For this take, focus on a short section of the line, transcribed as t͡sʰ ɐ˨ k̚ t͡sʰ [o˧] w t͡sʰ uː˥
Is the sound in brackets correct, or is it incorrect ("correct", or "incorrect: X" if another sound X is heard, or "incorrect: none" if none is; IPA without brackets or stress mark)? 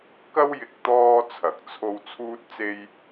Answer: correct